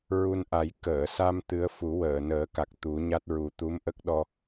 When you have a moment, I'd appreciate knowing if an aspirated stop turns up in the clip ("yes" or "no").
no